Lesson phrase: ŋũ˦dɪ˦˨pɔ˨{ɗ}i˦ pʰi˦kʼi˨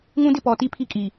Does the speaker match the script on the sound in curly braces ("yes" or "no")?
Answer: no